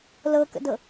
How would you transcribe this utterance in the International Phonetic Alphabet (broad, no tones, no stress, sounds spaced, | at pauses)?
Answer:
l ɤ k ə̰ d ɤ